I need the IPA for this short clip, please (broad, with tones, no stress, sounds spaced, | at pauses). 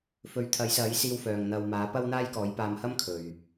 f ɵ˨˥ ɥ t̪ʰ ɐ˨˥ j s ɐ˨˥ j s iː˧ w f œː˨˩ ŋ n̪ ɐ˨ w m aː˨˥ p ɐ˥ w n̪ aː˥ j k ɔː˨˥ j p aː˧ m h ɐ˥ m kʰ ɵ˨ ɥ